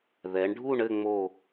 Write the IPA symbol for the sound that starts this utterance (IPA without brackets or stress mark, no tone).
ð